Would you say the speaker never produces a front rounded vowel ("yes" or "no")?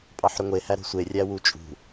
no